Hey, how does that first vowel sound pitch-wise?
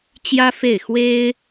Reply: high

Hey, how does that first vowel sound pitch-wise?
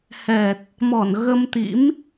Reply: low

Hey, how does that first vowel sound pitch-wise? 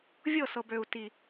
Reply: falling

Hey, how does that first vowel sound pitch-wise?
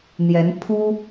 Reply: rising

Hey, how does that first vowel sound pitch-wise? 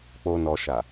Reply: low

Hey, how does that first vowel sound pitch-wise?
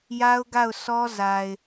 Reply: high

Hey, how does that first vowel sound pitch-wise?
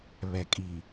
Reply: low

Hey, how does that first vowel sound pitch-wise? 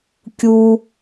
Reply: low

